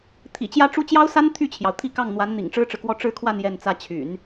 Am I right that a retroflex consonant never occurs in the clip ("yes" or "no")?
no